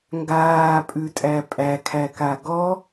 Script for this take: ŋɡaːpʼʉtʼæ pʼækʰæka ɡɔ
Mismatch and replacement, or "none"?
none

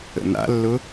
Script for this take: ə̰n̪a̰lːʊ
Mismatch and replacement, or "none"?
none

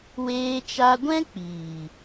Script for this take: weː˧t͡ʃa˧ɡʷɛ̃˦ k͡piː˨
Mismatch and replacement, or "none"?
none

